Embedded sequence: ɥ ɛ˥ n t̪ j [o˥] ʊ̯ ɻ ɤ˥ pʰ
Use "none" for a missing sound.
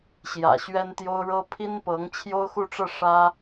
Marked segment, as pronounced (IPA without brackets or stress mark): o˥